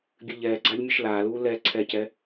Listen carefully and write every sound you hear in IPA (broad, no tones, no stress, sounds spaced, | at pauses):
bʲ ɨ ʎ ɛː ɡ͡ǀ a ʎ mʲ ɨ ʃ l aː l uː l ɛ ǀʰ ɛ c ɛ